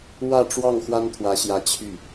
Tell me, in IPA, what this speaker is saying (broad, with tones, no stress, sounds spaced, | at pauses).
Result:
w ä˥˧ ʈ͡ʂ w ɑ˥˩ ŋ x w a˥ n t̪ʰ w ä˧˥ ɕ j ä˧˥ t͡ɕʰ y˥˩